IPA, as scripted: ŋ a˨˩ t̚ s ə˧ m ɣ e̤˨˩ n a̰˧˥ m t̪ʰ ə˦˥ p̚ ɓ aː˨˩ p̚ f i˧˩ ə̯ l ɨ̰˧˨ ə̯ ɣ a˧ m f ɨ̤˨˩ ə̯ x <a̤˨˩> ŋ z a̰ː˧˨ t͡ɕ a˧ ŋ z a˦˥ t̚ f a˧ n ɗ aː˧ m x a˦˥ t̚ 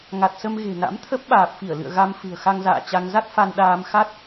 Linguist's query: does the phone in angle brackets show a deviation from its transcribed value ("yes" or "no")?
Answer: yes